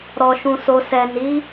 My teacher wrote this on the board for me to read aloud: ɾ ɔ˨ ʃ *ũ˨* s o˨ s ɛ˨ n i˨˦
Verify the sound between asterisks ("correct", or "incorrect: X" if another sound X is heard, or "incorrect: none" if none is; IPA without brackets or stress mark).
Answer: correct